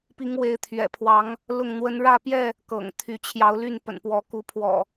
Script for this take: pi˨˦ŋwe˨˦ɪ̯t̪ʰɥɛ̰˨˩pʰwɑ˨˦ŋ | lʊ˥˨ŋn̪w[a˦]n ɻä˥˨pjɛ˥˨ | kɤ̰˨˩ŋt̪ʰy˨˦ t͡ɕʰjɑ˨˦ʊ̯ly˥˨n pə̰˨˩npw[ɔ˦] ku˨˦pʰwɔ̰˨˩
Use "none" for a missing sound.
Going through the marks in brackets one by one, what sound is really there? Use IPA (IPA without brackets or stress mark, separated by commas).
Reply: ə˦, ɔ˨˦